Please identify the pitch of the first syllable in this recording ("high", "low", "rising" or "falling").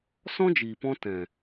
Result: high